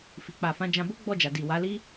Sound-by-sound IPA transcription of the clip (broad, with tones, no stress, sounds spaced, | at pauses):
f i˨ k͡p a˨ f ã˨˦ d͡ʒ ã˧ b o˦ ɡ͡b ɔ˦˨ d͡ʒ a˨ d i˨ w a˨˦ l i˦